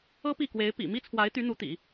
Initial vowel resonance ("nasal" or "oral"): oral